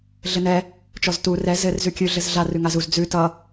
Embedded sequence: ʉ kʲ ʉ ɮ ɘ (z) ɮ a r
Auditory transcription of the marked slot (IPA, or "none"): z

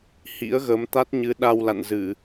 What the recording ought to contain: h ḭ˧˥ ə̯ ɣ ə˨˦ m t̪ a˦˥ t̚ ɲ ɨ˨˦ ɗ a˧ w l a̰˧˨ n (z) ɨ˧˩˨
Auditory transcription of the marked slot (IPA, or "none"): z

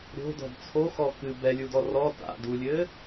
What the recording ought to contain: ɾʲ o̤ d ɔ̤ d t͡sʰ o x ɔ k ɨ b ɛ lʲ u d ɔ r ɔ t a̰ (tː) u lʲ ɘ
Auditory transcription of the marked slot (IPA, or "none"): d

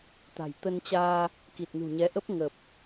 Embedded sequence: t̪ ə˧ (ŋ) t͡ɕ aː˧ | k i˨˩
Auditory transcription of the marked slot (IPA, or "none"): n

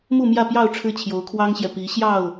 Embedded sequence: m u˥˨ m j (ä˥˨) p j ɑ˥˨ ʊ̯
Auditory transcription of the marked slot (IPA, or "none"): ä˥˨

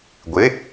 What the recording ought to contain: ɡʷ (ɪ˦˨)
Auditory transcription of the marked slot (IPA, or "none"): ɪ˨˥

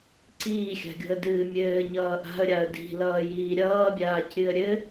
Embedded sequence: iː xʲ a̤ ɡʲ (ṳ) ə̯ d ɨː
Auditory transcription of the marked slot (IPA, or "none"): o̤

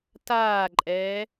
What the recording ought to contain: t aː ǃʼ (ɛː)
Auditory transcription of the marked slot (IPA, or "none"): ɛː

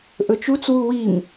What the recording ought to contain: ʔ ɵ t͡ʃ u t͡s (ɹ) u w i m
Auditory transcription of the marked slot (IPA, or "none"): w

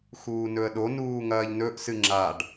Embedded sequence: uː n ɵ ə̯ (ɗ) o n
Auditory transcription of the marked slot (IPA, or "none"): ɗ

